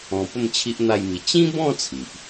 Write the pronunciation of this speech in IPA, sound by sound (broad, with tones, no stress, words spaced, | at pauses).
ɔ̃˧pə˥˧m t͡ɕʰi˦ʔn̪a˥˧jmi˧ t͡ɕĩ˦bɔ̃˥˧ t͡sʰi˨ʔ